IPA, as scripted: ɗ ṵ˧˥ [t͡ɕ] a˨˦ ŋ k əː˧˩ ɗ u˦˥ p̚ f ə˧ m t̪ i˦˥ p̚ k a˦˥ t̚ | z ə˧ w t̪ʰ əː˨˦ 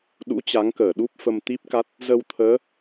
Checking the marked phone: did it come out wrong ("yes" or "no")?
no